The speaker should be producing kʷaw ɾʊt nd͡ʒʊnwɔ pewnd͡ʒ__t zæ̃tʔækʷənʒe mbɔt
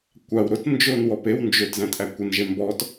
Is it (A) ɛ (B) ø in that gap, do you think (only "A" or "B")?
B